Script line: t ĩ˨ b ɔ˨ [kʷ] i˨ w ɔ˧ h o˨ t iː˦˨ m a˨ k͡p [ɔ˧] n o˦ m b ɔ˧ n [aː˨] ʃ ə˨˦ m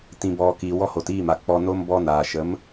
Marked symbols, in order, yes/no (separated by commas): no, yes, yes